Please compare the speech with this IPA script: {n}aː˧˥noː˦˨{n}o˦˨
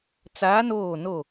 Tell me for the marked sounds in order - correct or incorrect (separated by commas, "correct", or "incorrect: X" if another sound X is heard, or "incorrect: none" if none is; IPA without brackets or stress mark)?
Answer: incorrect: t͡s, correct